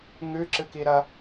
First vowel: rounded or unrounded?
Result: rounded